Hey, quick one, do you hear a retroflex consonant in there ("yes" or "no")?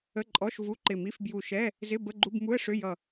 yes